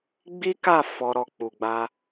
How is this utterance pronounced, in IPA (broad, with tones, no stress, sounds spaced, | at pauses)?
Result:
ɡ͡b i˦ k a˦˨ f ɔ˧ ɾ ɔ˧ k͡p u˨ ɡ͡b a˧